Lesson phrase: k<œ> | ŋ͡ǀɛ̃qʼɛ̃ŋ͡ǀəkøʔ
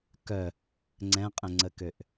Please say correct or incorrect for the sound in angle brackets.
correct